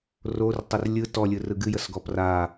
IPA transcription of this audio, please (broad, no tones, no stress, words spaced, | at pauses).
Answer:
rortˤər lʲɯ tɔlʲɯrɯ ɡɨjəsɡɔ pra